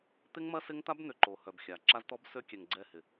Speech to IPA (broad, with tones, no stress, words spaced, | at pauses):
t̪ɪ˦ŋmɐ˦ sɪ˦ŋt̪a˦b n̪ʏ˨ǃo˨ hœ˨bxʲa˨ ǁa˦zt̪ɔ˦bsø˦ kʲɛ˨ŋɡ͡ǀɛ˦˨hɪ˨